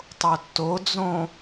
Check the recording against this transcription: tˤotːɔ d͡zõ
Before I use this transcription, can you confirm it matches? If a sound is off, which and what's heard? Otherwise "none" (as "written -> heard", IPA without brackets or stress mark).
ɔ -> o